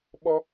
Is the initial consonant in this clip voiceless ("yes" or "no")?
no